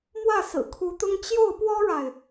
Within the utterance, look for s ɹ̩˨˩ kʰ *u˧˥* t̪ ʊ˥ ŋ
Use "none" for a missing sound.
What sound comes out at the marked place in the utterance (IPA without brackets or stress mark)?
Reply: u˧˥